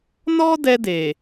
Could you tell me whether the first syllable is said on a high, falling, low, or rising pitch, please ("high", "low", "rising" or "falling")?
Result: high